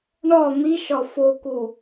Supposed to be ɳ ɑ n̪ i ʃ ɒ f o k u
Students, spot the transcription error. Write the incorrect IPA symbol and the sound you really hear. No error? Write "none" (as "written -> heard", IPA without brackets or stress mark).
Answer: ɑ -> ɒ